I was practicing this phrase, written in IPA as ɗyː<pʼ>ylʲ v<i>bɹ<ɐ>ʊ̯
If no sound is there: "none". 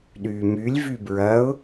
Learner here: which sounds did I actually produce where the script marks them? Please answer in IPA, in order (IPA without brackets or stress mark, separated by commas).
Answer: m, y, ɐ